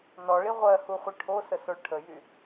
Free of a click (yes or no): yes